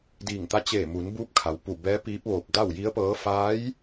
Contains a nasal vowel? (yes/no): no